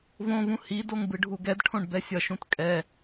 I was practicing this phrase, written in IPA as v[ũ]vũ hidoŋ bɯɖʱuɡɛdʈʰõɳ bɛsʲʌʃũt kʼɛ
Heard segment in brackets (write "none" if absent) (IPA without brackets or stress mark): õ